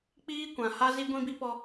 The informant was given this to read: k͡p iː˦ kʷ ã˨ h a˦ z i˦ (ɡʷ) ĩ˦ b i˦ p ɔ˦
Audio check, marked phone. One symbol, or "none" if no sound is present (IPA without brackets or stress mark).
ɡʷ